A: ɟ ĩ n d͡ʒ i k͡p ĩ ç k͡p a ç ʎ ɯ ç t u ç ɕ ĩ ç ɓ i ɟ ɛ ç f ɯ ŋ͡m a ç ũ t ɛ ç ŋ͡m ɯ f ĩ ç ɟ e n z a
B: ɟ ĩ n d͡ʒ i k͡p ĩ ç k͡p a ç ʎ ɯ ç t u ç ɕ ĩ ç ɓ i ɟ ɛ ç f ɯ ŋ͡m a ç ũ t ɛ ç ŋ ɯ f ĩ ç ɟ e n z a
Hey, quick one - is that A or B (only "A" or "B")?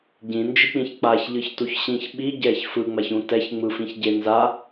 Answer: A